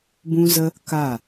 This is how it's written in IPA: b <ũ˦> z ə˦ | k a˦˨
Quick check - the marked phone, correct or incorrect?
correct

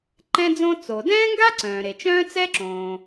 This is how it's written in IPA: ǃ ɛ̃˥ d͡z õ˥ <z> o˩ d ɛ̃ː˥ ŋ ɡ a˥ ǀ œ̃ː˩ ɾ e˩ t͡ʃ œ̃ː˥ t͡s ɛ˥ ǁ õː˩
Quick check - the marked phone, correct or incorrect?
incorrect: t͡s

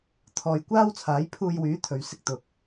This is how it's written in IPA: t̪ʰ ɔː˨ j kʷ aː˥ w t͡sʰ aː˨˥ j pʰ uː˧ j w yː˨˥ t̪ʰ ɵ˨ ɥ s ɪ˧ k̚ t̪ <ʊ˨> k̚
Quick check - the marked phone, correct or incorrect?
correct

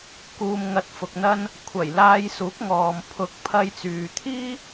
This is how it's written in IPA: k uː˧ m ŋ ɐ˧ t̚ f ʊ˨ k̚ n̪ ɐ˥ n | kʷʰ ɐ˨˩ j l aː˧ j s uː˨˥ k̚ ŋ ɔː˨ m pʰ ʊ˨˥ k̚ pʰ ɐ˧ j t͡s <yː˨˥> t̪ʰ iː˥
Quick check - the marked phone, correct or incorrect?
incorrect: yː˨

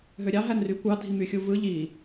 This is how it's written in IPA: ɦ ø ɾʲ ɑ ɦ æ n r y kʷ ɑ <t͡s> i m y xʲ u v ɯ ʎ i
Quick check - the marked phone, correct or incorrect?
incorrect: dʱ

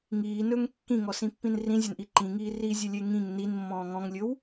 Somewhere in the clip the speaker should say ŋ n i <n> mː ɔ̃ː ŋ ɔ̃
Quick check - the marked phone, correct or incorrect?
correct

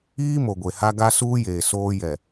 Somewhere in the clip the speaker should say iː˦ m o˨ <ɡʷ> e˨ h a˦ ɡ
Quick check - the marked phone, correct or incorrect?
correct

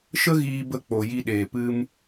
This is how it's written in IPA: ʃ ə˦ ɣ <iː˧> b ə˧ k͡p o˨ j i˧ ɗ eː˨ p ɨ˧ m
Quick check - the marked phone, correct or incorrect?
correct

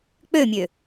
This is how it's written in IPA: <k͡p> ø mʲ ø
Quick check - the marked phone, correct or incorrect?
correct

